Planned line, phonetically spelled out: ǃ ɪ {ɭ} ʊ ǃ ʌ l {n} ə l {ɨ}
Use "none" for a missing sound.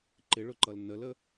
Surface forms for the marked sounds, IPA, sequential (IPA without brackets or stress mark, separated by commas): ɭ, n, ə